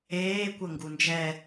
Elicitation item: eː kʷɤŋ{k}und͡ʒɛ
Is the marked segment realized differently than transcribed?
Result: yes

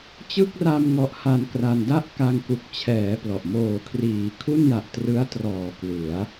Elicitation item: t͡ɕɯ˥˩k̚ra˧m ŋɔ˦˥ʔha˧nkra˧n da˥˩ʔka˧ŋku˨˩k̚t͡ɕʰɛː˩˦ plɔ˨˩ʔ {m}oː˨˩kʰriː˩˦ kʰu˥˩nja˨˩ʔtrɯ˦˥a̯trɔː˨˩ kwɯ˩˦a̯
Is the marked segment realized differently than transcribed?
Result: no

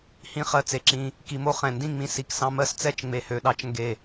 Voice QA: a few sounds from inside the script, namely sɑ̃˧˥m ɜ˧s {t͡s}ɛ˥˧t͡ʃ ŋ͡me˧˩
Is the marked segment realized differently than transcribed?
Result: no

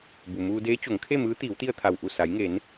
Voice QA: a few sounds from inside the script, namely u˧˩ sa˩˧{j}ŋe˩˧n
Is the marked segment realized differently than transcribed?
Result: no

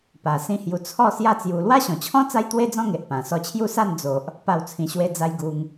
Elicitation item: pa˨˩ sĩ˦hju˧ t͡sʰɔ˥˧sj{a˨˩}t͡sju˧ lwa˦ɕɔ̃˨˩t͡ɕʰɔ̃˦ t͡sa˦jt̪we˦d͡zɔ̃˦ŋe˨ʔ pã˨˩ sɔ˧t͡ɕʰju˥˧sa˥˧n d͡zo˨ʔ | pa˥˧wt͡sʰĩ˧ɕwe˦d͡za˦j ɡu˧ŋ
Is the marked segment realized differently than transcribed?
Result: yes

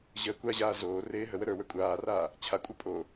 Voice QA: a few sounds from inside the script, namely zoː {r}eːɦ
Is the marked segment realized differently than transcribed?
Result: no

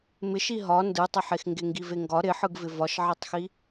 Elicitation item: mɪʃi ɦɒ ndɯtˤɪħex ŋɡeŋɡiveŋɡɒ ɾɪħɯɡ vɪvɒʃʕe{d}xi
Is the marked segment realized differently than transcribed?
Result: yes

